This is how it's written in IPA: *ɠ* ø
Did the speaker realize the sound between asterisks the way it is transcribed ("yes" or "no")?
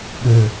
yes